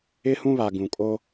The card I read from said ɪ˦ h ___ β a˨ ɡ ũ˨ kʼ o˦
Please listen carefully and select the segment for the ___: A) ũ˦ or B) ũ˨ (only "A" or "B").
A